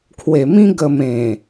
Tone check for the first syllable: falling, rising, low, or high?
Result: low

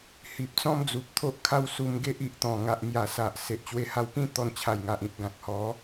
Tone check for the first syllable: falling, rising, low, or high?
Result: low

